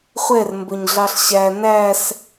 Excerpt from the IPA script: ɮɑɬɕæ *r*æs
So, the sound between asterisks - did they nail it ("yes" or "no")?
no